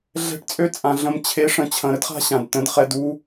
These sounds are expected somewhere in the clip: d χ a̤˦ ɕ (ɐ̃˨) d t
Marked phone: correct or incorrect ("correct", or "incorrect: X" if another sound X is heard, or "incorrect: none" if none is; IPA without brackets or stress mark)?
incorrect: ã˨